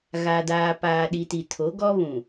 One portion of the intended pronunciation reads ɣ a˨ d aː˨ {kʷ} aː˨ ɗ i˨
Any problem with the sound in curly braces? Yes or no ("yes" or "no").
yes